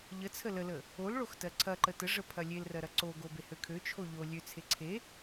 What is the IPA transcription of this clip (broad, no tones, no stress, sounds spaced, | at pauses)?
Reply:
ʎ ə t͡sʰ ə l ə l ə | o l ɭ o x t ɜ ǀʰ ɐ ǃ ə t ə ʐ ə pʰ ɐ lʲ e l r ɜ ɾ ɐ ǀ o ɡ o b e h ø kʰ ø t͡ʃʰ o ʎ o lʲ ø t͡sʰ e ǀʰ e